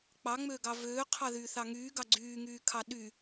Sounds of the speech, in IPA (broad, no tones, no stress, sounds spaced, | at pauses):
k͡p ɑ ŋ͡m øː ɡ ɑ v øː qʰ ɑ ð yː θ ɑ ŋ yː ɡ ɑ ɡ͡ǀ yː ŋ yː kʰ ɑ ɗ y